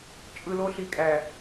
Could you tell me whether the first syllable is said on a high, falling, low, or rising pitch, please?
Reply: low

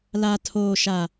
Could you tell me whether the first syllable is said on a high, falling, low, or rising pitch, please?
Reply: low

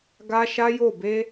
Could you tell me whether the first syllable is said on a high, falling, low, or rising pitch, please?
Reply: high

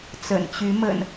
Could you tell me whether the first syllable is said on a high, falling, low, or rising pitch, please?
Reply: low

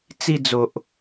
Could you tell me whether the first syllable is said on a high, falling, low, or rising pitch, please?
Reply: falling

